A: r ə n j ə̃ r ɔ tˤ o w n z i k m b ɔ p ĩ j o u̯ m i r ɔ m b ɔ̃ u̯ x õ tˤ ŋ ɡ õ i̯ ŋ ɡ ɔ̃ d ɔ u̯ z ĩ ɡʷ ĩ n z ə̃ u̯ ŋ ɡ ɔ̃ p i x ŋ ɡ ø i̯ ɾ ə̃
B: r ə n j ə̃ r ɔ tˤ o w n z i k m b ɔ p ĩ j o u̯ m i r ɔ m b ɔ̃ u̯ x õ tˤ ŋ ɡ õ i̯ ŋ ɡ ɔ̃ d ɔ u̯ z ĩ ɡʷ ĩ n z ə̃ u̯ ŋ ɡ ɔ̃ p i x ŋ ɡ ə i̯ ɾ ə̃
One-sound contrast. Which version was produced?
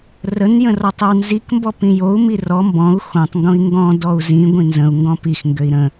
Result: A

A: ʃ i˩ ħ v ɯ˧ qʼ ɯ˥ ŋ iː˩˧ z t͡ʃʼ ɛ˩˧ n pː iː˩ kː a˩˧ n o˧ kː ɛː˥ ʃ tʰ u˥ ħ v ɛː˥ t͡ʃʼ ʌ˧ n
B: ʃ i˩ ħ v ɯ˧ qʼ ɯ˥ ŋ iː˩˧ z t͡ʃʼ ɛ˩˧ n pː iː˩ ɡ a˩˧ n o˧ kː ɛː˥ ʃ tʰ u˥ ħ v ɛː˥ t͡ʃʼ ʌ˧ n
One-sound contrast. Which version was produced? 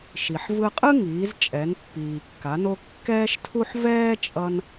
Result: A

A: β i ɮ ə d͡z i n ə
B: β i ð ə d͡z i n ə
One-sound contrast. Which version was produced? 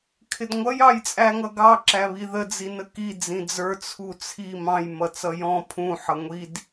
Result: B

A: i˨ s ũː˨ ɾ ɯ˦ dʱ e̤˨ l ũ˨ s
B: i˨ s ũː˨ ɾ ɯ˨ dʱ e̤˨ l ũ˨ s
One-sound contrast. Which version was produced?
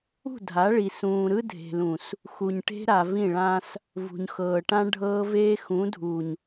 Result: A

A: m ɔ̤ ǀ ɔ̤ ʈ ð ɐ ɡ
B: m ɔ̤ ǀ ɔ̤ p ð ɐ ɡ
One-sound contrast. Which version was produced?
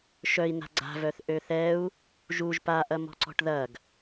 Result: A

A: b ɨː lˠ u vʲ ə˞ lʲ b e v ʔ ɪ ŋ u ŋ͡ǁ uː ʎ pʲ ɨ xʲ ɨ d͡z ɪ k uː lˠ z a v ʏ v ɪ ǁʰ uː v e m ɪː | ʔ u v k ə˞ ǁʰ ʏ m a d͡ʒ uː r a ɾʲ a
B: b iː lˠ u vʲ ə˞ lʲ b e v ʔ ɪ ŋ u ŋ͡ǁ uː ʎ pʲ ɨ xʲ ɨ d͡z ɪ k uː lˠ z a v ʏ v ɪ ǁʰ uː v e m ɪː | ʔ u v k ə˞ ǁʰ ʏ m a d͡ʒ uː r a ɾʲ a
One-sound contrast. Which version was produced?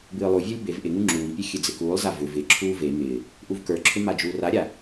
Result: A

